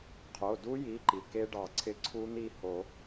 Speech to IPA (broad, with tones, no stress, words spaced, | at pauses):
qʰo˩˧˩du˦˥ji˩˧˩ ǃi˩ke˦˥ɖɑ˨˩˦ǀʰɪ˦˥ ǀʰu˦˥n̪i˥˨ho˨˩˦